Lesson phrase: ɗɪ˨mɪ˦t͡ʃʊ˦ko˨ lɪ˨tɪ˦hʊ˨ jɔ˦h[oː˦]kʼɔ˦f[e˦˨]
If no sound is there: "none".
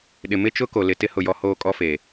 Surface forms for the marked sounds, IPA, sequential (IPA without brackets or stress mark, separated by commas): oː˦, e˨